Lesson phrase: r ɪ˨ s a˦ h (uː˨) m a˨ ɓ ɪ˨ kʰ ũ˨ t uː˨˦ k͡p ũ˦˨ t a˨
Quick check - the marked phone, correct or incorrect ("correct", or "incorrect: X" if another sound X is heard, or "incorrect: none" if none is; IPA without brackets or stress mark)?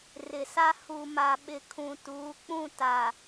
incorrect: u˨